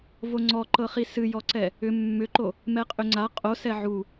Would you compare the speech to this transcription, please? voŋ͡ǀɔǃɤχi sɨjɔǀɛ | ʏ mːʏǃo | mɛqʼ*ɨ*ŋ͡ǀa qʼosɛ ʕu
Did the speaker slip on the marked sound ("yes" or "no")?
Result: yes